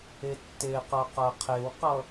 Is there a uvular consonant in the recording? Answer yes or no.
yes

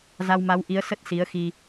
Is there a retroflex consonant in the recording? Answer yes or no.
no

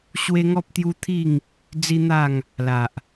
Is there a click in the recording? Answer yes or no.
no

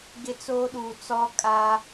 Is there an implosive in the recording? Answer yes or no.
yes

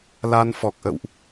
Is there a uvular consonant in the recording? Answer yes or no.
no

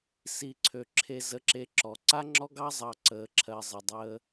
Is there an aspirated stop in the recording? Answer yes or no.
yes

